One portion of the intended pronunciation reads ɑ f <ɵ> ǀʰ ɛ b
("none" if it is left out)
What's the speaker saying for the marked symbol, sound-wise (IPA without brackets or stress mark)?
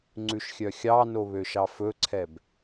ɵ